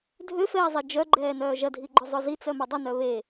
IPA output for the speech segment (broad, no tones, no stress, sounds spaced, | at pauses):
dʱ ø f ɛː zˤ e d͡ʒ œ ɡ͡ǃ ɛː n œː ʒ ɐ dʱ i ɡ͡ǃ ʊ zˤ ʊ z i t͡s œ m œ dˤ ʊ n œ β e